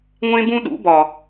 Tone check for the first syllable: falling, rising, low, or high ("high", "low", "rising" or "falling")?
high